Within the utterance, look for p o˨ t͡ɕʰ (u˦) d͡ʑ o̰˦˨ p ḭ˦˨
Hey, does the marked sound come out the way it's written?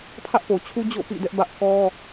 yes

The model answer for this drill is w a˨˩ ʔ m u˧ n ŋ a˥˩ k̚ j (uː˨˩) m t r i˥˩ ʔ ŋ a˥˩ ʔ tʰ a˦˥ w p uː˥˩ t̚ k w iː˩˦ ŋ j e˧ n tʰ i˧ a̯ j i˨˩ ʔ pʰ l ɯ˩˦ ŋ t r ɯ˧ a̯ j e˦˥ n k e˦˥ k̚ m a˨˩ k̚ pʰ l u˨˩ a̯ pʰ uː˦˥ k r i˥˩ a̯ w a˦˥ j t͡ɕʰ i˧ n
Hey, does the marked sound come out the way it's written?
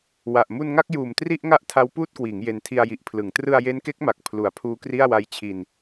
yes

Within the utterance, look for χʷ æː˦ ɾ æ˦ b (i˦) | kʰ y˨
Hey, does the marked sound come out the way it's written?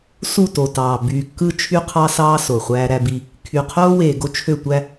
yes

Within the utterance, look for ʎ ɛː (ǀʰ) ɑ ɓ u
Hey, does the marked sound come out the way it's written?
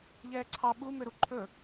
yes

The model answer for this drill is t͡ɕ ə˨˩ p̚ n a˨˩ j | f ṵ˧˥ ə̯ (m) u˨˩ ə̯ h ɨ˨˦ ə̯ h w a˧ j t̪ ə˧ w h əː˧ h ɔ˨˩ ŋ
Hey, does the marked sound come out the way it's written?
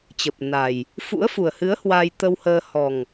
no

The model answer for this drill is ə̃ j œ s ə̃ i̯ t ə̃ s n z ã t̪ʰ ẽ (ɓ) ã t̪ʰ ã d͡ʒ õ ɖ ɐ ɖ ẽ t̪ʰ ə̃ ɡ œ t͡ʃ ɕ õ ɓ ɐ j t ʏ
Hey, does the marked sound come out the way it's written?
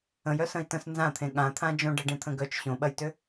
no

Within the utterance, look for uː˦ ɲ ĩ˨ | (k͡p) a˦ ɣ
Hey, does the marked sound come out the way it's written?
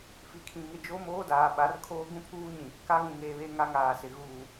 no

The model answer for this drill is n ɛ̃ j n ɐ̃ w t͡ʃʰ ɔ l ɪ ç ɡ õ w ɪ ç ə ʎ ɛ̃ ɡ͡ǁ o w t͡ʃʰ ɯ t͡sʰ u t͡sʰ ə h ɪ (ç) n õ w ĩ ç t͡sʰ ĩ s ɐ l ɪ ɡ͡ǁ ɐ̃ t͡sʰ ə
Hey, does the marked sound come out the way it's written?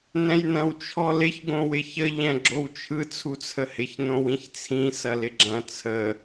yes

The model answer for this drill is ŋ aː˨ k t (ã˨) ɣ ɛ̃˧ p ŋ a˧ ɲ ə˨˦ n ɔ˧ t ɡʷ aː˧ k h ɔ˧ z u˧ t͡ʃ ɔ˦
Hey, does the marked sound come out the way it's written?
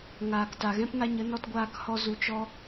no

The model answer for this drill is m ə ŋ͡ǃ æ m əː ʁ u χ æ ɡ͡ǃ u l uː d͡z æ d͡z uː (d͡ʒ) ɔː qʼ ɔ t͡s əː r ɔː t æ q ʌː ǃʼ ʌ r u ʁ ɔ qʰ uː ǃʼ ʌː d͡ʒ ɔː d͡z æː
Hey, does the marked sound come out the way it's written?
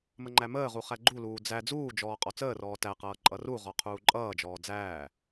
yes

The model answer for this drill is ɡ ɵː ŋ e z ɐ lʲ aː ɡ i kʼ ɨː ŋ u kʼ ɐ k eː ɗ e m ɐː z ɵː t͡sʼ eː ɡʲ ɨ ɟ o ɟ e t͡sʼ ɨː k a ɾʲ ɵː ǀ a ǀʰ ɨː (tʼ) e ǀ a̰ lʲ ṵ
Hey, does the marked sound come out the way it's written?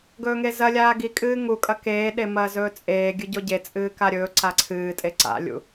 yes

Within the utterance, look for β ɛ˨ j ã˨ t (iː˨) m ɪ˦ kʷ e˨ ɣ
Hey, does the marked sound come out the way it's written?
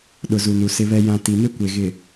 no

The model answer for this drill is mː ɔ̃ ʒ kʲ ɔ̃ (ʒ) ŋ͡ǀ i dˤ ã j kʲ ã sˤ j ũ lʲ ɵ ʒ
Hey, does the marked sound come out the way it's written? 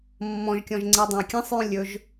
yes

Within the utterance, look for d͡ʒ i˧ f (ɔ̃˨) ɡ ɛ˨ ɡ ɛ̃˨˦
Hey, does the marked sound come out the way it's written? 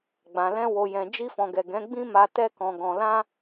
yes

